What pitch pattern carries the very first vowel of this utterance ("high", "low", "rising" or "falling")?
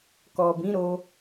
low